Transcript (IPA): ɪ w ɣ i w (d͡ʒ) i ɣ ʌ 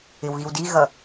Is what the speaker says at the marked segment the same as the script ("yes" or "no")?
no